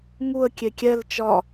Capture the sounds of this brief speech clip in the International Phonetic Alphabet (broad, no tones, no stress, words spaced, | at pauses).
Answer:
ŋuə̯ kʲekʲɛl t͡ʃɒ